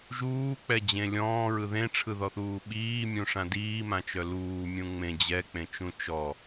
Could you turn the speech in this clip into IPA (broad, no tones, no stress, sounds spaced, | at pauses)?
ʒ uː k͡p ɛ d͡ʑ ẽ lʲ ɔ̃ː ɹ ɯ ð ẽ ʈ͡ʂʰ ɯ ð ɔ θ uː ɓ iː mʲ ũ ʂ ã d iː m ã t͡ʃ œ l uː mʲ ũ ŋ͡m ẽ d͡ʑ ɛ k͡p ẽ t͡ʃ ũ t͡ʃ ɔ